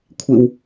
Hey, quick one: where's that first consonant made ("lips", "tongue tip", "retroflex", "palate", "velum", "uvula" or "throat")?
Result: velum